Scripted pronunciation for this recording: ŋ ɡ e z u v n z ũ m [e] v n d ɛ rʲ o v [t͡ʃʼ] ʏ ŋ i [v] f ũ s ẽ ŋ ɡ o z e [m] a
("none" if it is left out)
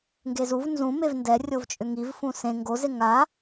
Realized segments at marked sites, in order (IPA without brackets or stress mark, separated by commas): e, t͡ʃʼ, v, ŋ